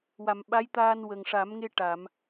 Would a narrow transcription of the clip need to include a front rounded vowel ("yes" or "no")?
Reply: no